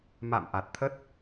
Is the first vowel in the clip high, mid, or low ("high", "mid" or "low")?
low